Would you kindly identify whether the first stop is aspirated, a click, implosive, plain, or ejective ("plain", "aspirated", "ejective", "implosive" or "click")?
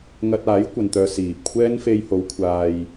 plain